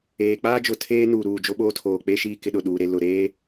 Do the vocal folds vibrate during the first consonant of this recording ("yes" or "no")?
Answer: no